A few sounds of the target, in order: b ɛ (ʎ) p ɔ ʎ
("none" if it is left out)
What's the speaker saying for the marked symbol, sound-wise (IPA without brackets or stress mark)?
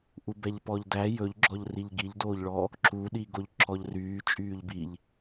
ʎ